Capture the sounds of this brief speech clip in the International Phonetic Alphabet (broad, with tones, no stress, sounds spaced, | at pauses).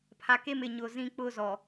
pʰ a˨ k e˦ m ɪ˨ ɲ ʊ˨ z ĩ˦ k͡p ʊ˦ z ɔ˨